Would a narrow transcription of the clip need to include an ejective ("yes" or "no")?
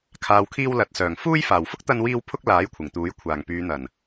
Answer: no